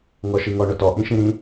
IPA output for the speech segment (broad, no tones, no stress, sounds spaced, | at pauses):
ŋ ɔ ʃ i ŋ ɔ ɳ ʊ t ɔ ʔ ĩ ʃ ĩ ɾ ĩ